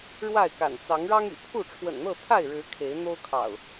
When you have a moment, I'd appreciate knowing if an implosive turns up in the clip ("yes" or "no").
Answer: no